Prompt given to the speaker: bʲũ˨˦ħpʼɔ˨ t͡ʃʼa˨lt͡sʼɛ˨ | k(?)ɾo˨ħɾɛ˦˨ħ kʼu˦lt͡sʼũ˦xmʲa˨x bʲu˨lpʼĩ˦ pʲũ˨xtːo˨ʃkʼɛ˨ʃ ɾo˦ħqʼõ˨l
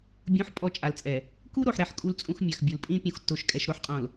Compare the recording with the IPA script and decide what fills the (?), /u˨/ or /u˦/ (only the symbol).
u˦